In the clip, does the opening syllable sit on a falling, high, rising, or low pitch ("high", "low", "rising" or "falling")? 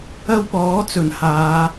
high